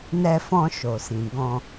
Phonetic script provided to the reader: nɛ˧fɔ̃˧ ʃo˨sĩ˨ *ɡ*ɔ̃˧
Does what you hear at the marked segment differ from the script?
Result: no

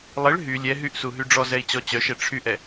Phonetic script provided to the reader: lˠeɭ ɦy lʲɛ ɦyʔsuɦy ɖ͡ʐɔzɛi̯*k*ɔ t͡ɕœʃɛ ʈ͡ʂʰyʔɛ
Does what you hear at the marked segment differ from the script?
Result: yes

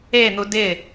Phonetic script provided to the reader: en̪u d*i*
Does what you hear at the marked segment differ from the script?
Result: yes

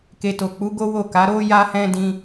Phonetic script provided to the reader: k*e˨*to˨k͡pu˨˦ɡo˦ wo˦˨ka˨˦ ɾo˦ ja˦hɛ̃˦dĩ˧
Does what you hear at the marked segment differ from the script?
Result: no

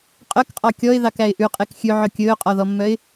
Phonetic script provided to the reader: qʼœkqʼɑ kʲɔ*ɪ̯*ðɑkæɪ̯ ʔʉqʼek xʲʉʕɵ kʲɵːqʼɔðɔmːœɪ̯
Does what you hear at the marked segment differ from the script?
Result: no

